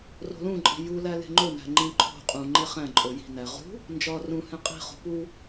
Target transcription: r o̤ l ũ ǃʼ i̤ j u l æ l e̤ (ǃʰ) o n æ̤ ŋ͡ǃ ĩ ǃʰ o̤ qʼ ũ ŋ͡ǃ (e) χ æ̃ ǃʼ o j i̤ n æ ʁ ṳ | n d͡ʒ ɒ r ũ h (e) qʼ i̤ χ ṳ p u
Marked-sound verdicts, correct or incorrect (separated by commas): incorrect, correct, incorrect